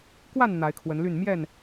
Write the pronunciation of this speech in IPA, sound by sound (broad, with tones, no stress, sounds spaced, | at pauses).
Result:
k w a˥˨ n n̪ a˨˦ ɪ̯ kʰ w ə˨˦ n l y˥˨ n m j ɛ˥˨ n